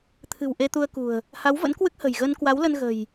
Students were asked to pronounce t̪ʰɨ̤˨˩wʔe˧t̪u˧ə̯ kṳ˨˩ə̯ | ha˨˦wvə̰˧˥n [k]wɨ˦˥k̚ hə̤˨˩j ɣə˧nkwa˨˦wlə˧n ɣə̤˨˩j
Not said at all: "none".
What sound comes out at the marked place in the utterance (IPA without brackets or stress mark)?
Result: k